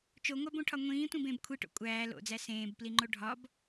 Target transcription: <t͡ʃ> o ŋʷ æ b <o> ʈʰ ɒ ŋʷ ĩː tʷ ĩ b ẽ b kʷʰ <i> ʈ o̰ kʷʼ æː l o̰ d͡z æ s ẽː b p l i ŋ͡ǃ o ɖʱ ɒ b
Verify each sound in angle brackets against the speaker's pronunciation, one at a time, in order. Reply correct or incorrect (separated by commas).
correct, incorrect, correct